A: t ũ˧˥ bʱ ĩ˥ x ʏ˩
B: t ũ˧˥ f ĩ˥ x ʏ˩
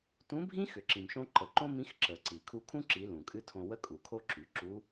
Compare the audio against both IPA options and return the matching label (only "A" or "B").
A